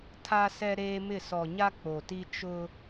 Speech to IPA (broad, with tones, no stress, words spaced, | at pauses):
tʰa˦sɛ˦ ɾeː˦mɪ˦˨ sɔ˨ɲa˦ k͡po˨ti˦ t͡ʃʊ˦